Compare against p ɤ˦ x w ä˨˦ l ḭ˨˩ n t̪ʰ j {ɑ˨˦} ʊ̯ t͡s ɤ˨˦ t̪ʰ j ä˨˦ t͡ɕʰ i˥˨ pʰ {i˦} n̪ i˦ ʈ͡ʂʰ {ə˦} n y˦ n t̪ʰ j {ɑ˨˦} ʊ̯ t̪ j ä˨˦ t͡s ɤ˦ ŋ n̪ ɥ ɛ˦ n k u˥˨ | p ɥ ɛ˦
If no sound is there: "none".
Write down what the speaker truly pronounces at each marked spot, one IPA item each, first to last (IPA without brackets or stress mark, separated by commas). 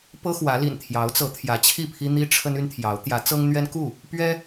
ɑ˨˦, i˦, ə˦, ɑ˨˦